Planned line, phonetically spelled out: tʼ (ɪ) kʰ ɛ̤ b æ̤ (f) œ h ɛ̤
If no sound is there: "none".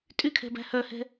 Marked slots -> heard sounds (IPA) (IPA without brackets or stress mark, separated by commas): y, h